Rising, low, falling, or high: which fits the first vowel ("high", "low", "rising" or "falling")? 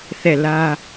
falling